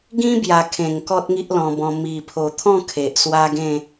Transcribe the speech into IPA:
ɡ ĩ˦ b j a˨˩ kʰ ẽ˨˩ ŋ k ɔ˦ t̚ ŋ i˦ ʔ l ɔ̃˧ b ɔ̃˧ m i˨˩ pʰ o˨˩ t̪ʰ ɔ̃˥˧ kʰ e˨ ʔ s w a˦ ɡ ẽ˥˧

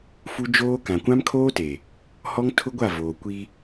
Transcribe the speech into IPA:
f u˦ d͡ʒ oː˦ k ã˨ kʷ ã˦ m kʰ oː˦ t e˨ | h ɔ˦ ŋ tʰ ʊ˦ ɡʷ a˦˨ v oː˨ kʷ i˦

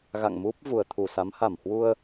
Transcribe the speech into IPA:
ɣ a̰˧˨ ŋ m u˦˥ p̚ v u˨˩ ə̯ t̪ʰ u˧˩ s a˨˦ m h a˧˩ m h w u˧ ə̯

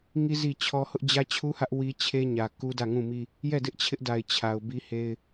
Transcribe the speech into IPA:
ŋ i˦ z i˦˨ t͡ɕʰ ɔ˦ h ʊ˦ ʔ d͡ʑ ä˦ t͡ɕʰ u˦ h ä˦ ʔ w i˦ t͡ɕʰ e˦ ɲ ä˨ k u˦ d ä˦˨ ŋ ũ˦˨ m i˦ | j ɛ˦˨ d ɪ˦ ʔ t͡ɕʰ ɪ˦ ʔ d a˨ ɪ̯ t͡ɕʰ a˨ ʊ̯ b i˦ h e˦ ɪ̯

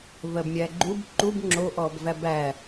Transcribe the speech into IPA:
v ɜ b mʲ æ ɡ͡ǃ u b ǃ u b ŋ͡ǁ o ʔ ɔ b v æ b æ

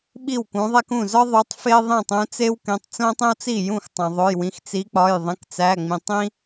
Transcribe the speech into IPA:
ɓ i˥˩ w k ũ˨˦ ðˤ æ˥ k ũ˥˩ z ɒ˥ ðˤ u˨˦ tˤ f e˥ ðˤ ĩ˥˩ tˤ ũ˨˦ t͡s e˥ w k ẽ˩˧˩ tˤ t͡s õ˥ tˤ ẽ˥ w t͡s i˥˩ j ũ˥˩ x tˤ æ̃˩ ðˤ o˩˧˩ j w ĩ˩˧˩ x t͡s i˨˦ k͡p ɒ˩˧˩ j ðˤ ẽ˩˧˩ k t͡s æ˩˧˩ ŋ͡m ĩ˩ tˤ ĩ˥

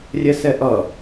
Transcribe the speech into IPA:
rʲ ɛ s ɛ ʔ ʌ

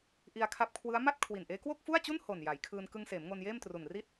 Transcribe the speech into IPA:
ʔ i˧ a̯ kʰ a˦˥ p̚ kʰ w ɯ˦˥ a̯ m a˥˩ t̚ kʰ w i˨˩ n ʔ eː˦˥ k w o˥˩ k̚ f u˥˩ a̯ t͡ɕ u˥˩ n h o˨˩ n j a˩˦ j kʰ ɯː˧ n k ɯ˧ ŋ s eː˩˦ m ŋ o˧ n j eː˥˩ m t r u˨˩ n r i˥˩ t̚

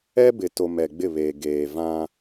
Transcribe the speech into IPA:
ɛ˦ b ɪ˨ t o˨ m ɛ˨ ɡ͡b ɪ˦˨ β eː˨ ɡ eː˨ v ã˦

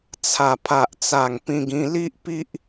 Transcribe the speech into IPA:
t͡sʰ a˨˩ pʰ a˨ ʔ t͡s a˨˩ ŋ p ĩ˧ ɡ ĩ˧ l i˦ ʔ p i˦ ʔ

